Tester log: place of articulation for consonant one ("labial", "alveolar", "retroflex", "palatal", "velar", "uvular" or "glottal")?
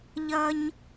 palatal